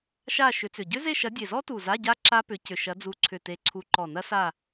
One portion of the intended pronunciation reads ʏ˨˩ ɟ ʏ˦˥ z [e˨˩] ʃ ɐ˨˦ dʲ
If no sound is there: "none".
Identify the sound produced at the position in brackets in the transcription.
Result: e˦˨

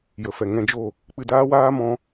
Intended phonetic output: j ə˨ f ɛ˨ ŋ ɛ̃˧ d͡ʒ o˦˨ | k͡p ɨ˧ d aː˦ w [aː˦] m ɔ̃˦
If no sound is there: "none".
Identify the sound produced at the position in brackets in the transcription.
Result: aː˦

